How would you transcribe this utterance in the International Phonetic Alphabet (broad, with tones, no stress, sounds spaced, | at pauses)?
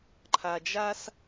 ǃʰ a˨ d͡ʒ a˦ s